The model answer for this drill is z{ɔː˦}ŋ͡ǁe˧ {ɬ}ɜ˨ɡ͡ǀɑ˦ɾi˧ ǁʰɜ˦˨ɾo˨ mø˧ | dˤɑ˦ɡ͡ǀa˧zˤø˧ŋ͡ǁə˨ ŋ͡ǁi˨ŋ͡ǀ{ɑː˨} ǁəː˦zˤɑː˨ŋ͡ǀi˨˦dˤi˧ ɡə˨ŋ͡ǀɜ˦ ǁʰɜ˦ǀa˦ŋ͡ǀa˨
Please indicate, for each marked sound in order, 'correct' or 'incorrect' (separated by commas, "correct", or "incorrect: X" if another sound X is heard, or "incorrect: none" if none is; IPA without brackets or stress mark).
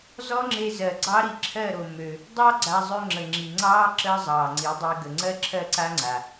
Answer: incorrect: ɔ˦, incorrect: z, incorrect: ɑː˦